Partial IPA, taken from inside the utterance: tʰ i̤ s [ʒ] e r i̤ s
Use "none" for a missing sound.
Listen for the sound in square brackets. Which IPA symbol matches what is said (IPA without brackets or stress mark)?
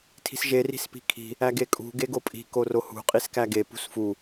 ʒ